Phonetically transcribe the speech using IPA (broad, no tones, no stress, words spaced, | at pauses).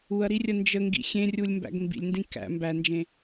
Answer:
uɐ̯ɾirʲə nd͡ʒəŋɡḭ xʲẽrʲulʲmbæ̰ɡ mbḭlʲndĩ kæ̰ mbænd͡ʒẽ